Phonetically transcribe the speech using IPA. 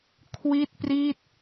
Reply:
kʰwi˥˩t̚pri˥˩t̚

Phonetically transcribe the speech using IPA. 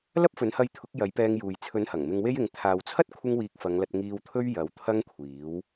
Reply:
lɐ˥p̚fɵ˨˥nhɐ˧jt̪ʰʊ˨˥k̚ jɐ˨˥jpɛː˧ŋjuː˨j t͡sʰɵ˨˥n hɐ˨˩ŋ mɪ˧ŋwe˥jɪ˨˧ŋ t̪ʰaː˨wt͡sʰɐ˥t̚ kʷʰɪ˥ŋwiː˧k̚fɐ˨˧ŋlɐ˧t̚ ŋiː˧wt̪ʰɵ˥ɥ jɐ˨˧wt̪ʰɐ˥ŋkʷʰiː˨˥w

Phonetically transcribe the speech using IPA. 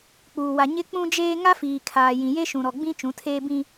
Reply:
k͡puː˨ wa˨ ɲɪ˦ k͡pũ˦d͡ʒeː˦ ŋa˦fiː˨kʰaː˨ jĩ˨je˦ ʃũ˨ɾɔ˨ɡ͡bĩ˦ t͡ʃũ˨˦tʰeː˦bĩ˦

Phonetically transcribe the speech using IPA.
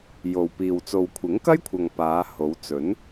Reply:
jo˨wpiː˨w t͡so˨wkʷʰɪ˨˥ŋkɐ˥jkʷʰɐ˨ŋ paː˨˧ ho˨˧w t͡sɵ˨˥n

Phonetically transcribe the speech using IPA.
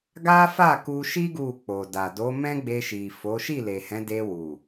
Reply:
ɡa˦fa˦˨ku˧ʃi˦ ɡu˦˨k͡po˨ da˨ do˨˦mɛ̃˦ɡ͡be˧ʃi˨ fo˨˦ʃi˦˨le˨hɛ̃˨˦ de˧wu˨

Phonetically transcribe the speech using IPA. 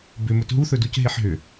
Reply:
bʏ mɵtɦuθɵduc ɦeħɦʏ

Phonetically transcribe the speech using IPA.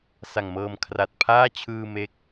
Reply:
sa˨˩ŋmɤː˧mkʰra˨˩t̚ pʰaː˥˩t͡ɕʰɯː˧ me˦˥k̚

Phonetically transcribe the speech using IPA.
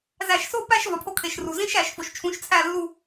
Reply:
zæ˧˩˧ʃso˥˧ pæ˥˧ʃvɒ˩pʰo˧kʰe˩ʃ ru˩zĩ˥˧ʃæ˧˩˧ʃ fo˩ʃt͡ʃʰũ˩˧˩ʃt͡sʰæ˧˩ lːu˧˩

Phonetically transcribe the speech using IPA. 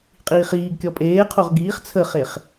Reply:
qʼiːχiːɡkʲɔ pʼeːqʰoʁ ɡiːχ t͡sʰəχeχ

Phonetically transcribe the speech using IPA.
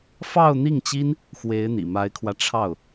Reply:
fɑ˥˧ʊ̯n̪i˥˩ŋt͡ɕi˥n | xwe˧˥ɪ̯ n̪ḭ˨˩ ma˧˥ɪ̯kʰwä˧ ʈ͡ʂʰɑ˥˩ʊ̯

